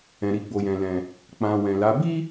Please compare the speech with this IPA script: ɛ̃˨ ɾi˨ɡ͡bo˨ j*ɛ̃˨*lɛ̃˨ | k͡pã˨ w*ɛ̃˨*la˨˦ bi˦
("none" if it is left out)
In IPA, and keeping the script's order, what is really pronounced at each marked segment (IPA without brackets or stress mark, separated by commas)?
ɛ̃˨, ɛ̃˨